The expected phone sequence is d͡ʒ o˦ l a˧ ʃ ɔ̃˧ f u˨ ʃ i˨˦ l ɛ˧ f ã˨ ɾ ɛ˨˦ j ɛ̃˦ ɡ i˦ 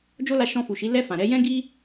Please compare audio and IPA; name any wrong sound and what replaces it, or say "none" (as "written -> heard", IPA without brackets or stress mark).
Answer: none